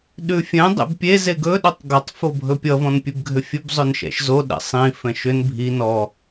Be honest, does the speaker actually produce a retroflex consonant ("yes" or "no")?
no